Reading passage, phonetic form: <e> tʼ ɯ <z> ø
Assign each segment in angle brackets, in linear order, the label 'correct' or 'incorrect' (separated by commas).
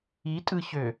incorrect, incorrect